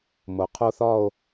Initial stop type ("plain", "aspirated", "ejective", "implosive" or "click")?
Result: aspirated